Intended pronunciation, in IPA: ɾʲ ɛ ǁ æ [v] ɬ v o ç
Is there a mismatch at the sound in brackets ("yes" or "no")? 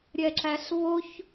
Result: yes